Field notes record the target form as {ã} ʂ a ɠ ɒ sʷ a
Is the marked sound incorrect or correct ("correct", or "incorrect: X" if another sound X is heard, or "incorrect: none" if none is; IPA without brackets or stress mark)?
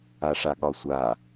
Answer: incorrect: a